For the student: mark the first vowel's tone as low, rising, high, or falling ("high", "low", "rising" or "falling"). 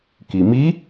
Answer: low